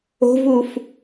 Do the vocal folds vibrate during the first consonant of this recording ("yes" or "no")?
yes